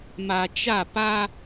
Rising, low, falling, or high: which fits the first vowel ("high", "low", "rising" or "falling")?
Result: low